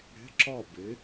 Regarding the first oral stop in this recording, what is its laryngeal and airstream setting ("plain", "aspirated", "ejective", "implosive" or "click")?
click